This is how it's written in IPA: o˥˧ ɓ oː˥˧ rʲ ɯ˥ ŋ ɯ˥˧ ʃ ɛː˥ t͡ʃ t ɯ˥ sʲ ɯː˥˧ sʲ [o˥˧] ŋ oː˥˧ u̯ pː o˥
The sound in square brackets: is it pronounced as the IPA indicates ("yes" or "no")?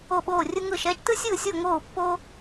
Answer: yes